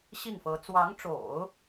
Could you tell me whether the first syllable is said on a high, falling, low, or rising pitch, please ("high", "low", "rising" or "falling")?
falling